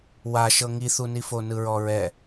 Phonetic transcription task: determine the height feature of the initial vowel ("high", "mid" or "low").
low